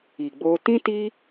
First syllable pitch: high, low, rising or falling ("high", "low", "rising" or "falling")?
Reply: low